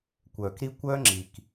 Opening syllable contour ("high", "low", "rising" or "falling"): low